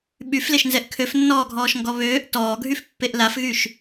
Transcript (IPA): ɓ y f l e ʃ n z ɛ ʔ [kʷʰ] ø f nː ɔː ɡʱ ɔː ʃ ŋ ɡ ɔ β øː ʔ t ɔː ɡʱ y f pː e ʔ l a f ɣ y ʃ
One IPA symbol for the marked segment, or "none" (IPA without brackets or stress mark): kʰ